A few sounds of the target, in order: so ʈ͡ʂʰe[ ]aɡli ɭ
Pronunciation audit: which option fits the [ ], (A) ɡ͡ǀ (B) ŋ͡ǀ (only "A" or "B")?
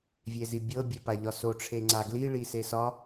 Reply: B